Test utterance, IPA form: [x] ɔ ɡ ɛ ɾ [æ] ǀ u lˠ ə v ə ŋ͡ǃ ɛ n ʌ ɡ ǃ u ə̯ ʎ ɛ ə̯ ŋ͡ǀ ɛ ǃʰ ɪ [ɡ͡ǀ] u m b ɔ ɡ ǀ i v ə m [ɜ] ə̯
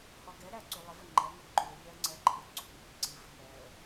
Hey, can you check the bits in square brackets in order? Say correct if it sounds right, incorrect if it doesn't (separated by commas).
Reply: incorrect, correct, correct, incorrect